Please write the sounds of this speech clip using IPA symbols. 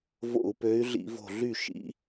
v o̰˧˩˧ u̯ p ø˨˦ y̯ ɮ ḭ˧˩˧ v o̤˧˩ ɮ y˥˩ ʃ ḭ˨˦

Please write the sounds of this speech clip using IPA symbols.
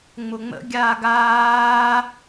ŋ͡m ʊ ŋ͡m ə̰ ɡʲ aː ɡ aː

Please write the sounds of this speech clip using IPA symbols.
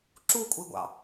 ǁ u kʷʼ i ɡʷ ɑ̰

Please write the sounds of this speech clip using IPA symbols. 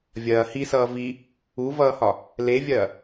vʲ ɐː h i s ʌː v i | u v ʌː h ɒ | l e vʲ ɐː

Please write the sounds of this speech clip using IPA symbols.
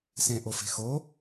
s ẽ ʔ o f e̤ x o

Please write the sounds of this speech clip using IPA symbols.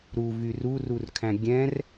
ɾ u v y r u r u r kʰ æ̃ ɡʲ ɛ̃ r

